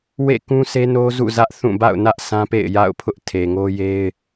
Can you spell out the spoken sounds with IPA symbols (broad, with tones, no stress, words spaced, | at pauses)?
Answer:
wḛ˦˨kũ˦sʰe˦ no˦zṵ˦˨zä˦ʔθũ˦˨ ba̰˦˨ʊ̯nä˦ʔ sã˦pḛ˦˨ɪ̯ ja̰˦˨ʊ̯pʰʊ˦ʔ tʰe˨ŋo˦je˦ɪ̯